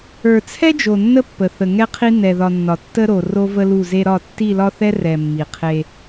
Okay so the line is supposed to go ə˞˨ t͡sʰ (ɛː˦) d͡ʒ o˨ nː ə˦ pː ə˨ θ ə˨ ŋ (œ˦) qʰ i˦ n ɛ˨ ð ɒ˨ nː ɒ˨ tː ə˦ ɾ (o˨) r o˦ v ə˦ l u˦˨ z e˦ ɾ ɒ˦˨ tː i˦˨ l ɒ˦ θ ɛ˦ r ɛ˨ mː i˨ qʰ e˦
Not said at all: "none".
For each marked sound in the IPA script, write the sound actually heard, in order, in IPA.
ɛ˦, ɛ˦, o˨

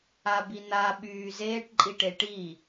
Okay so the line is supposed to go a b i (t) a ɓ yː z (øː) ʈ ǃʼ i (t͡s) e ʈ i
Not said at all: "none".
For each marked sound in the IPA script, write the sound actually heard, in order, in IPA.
n̪, eː, ʈ

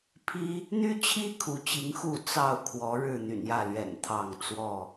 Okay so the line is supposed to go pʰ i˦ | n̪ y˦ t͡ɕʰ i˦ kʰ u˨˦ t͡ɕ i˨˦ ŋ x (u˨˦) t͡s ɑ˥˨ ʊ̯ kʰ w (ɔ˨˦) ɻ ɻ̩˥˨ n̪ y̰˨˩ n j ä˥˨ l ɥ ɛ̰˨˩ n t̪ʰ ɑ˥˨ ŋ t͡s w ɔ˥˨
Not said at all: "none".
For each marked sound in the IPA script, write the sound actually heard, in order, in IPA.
u˥˨, ɔ˨˦

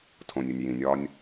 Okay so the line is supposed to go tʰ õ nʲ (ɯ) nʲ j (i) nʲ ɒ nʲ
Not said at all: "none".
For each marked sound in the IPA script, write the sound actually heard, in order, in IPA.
u, ĩ

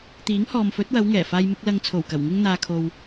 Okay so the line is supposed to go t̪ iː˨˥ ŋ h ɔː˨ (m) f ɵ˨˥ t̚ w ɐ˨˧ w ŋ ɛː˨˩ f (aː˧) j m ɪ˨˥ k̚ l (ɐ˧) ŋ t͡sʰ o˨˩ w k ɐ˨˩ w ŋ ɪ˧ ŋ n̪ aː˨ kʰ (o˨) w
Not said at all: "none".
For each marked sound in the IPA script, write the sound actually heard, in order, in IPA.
m, aː˧, ɐ˧, o˨

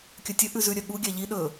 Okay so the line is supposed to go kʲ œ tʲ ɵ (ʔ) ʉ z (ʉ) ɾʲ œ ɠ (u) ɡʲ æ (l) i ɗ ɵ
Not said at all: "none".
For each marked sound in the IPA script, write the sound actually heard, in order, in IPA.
ʔ, ʉ, u, ʎ

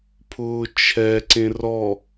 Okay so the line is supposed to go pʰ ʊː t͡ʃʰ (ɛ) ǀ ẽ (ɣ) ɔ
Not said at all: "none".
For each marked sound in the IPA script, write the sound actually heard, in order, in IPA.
ɛ, r

